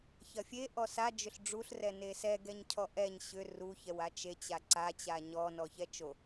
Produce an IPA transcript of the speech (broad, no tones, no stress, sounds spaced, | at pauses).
ç ɐ fʲ e ʔ ɔ s a d͡ʒ ʏ ɬ ɖ͡ʐ u ɬ r ɛ n e s ɛ ɡ ɛ ɲ cʰ ɔ ʔ ɛ ɲ ɕ ʏ r u ç ɛ w a t͡ʃ e t͡ɕ a ǀ a t͡ɕ a ɲ ɔ n ɔ ç ɛ t͡ʃ o